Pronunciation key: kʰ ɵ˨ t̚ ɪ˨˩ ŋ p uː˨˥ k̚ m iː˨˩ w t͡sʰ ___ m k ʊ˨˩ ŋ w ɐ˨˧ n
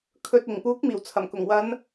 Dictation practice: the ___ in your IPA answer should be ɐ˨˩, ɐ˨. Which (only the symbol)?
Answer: ɐ˨˩